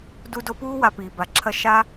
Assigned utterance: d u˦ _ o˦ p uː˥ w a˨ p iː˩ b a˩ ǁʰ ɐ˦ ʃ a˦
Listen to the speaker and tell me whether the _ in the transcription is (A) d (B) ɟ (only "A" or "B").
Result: A